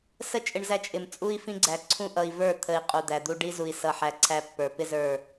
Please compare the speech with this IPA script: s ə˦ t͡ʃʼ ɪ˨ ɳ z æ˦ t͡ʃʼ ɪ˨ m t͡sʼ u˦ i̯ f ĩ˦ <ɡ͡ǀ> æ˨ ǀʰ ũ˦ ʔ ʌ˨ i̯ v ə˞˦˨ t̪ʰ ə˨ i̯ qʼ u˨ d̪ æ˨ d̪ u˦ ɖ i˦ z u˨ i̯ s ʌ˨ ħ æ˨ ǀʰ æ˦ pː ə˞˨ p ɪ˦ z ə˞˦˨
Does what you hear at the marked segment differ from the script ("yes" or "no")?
no